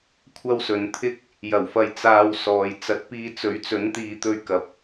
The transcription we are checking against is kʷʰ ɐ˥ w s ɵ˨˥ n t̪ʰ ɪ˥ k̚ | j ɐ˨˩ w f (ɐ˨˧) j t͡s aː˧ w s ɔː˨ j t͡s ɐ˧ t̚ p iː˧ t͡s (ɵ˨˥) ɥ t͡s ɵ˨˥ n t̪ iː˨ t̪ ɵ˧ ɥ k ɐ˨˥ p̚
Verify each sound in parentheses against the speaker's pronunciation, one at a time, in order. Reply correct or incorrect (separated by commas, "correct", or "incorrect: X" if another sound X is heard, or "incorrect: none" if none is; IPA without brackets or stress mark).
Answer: correct, correct